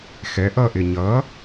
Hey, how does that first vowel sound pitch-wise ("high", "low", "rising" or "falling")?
rising